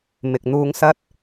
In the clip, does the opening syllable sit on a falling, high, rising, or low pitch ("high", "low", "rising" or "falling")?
low